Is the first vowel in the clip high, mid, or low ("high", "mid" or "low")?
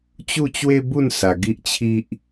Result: high